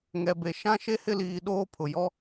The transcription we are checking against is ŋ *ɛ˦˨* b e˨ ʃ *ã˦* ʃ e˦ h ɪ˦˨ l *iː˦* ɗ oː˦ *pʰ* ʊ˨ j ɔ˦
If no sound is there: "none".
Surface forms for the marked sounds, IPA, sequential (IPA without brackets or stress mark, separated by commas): ɛ˨, ã˦, iː˨, pʰ